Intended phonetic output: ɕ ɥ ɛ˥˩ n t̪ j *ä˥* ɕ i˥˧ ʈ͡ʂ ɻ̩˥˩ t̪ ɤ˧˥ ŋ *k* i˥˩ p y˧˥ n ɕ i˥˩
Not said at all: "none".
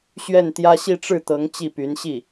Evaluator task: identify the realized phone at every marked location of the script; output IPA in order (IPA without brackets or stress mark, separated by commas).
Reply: ä˥, t͡ɕ